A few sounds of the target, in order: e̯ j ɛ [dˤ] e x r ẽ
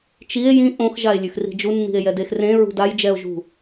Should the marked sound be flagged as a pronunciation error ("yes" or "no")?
yes